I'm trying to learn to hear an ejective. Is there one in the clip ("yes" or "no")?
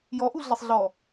no